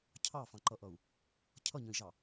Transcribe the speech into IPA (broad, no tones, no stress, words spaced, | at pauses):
cʰɑfɑ̃ǃʌʔʌu̯ | cʰʌɲə̃i̯ʒɑ